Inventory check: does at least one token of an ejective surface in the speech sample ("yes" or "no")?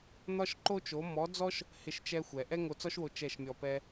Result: no